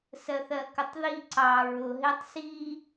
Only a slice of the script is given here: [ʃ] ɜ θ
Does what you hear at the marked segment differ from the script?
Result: yes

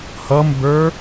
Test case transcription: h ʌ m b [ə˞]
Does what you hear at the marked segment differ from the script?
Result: no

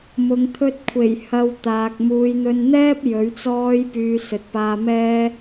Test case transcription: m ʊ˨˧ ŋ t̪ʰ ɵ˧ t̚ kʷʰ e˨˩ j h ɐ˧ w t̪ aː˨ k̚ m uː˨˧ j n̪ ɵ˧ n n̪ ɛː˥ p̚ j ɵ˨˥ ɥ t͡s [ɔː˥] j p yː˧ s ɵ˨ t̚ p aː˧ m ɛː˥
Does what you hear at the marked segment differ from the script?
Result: no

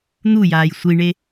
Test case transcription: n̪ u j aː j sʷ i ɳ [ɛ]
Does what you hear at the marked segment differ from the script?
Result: yes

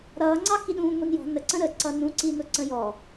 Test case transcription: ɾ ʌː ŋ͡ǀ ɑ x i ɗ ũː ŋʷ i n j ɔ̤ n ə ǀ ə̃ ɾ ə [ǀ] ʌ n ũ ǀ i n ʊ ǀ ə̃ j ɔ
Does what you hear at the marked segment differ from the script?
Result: no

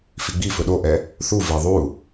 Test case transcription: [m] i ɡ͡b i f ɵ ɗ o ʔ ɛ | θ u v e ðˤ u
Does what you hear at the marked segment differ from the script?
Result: yes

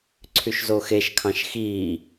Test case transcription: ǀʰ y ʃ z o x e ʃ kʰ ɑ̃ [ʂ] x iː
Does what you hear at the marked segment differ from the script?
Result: yes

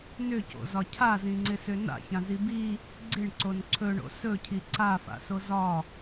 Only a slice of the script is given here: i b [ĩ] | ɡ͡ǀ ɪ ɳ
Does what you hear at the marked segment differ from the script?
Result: yes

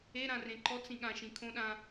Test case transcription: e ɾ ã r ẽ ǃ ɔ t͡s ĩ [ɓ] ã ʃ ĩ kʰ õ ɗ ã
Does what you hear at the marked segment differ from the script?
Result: yes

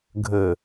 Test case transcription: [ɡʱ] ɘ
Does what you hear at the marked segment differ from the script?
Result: no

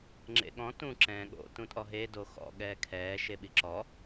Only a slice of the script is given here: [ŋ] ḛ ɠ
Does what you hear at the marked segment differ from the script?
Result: yes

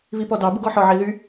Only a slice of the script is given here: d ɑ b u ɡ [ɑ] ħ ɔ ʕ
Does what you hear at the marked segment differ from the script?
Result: yes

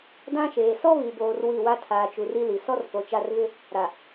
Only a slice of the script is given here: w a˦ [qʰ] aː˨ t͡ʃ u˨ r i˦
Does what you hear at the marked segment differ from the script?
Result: yes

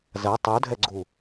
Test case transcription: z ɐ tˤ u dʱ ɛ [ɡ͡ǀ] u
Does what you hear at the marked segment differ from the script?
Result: no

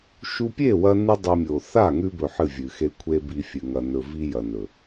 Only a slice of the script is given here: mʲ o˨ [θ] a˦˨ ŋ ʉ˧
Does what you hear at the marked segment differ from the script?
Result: no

